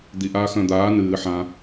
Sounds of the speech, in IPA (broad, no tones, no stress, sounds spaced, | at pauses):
d̪ i ʔ aː x œ̃ d̪ aː n ɨː ħ ã